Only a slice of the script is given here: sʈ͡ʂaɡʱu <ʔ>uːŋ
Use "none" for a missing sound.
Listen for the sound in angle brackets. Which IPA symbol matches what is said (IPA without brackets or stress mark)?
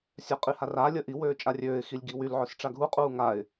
qʼ